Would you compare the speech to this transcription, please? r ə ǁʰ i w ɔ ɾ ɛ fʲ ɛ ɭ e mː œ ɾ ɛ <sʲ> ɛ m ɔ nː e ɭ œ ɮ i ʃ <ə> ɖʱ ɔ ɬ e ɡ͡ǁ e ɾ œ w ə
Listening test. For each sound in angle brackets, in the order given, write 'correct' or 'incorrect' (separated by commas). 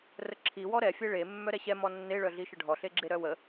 incorrect, correct